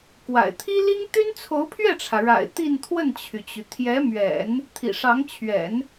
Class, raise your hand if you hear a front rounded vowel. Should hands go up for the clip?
yes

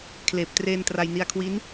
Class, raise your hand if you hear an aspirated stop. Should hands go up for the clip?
yes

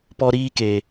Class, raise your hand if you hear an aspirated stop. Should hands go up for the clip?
no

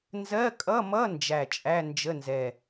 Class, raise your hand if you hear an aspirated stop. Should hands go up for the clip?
no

